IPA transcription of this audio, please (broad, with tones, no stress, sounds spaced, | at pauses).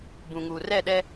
b ũ˨ ŋ uː˨ r ɛ˦˨ ɗ ɛ˦